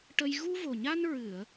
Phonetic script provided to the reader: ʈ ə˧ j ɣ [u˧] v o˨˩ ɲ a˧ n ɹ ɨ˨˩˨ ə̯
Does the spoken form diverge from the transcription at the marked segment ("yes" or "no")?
no